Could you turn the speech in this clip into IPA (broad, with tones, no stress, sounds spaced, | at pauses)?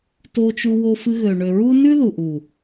t o˧ t͡ʃ u˧ w o˧ f ɨ˧ ɣ ø˨ ɳ ø˨ ɹ u˦ n ʉ˦ ð u˨ ʔ u˨